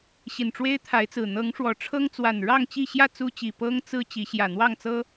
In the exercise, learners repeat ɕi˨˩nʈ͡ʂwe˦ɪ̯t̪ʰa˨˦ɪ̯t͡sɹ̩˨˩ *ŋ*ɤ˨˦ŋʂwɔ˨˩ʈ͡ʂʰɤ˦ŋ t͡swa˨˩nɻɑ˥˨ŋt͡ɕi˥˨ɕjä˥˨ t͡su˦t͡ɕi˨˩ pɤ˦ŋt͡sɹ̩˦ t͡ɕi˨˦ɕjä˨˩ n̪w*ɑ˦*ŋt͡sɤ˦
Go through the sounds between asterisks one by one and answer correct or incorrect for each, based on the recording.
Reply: incorrect: n̪, incorrect: ɑ˥˨

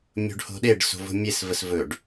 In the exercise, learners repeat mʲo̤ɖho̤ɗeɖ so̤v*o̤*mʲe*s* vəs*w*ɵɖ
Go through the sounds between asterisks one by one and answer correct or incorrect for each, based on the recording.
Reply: correct, correct, incorrect: v

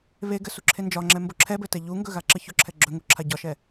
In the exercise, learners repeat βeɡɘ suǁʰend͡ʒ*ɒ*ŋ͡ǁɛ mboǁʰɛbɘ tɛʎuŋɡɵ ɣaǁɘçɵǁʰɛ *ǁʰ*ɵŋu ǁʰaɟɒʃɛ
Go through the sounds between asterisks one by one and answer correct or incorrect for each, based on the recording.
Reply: correct, incorrect: ɡ͡ǁ

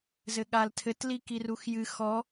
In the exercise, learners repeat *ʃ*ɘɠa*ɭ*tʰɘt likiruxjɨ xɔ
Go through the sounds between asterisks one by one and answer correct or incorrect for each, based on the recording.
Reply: incorrect: z, incorrect: l

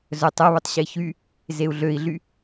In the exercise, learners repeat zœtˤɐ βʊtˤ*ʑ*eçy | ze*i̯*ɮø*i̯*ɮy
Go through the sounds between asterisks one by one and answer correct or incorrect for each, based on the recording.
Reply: incorrect: ɕ, incorrect: u̯, correct

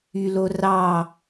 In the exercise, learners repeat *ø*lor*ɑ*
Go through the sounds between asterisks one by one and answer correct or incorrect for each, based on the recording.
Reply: incorrect: y, correct

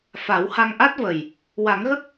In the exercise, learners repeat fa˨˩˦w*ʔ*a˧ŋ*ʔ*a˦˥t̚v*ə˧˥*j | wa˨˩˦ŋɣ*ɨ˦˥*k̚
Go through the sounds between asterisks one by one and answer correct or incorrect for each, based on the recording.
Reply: incorrect: h, correct, incorrect: ə˨˩, incorrect: ə˦˥

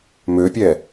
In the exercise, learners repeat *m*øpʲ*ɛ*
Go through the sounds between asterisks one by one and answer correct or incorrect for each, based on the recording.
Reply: correct, correct

